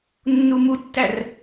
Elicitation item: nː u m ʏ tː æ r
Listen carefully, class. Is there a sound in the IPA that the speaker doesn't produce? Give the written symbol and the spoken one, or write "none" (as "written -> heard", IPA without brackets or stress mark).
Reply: ʏ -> u